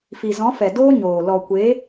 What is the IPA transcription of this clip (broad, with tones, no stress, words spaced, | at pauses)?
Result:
fi˨zɔ̃˨˦fɛ˨ doː˦ɲoː˨ lɔ˨kʷe˨˦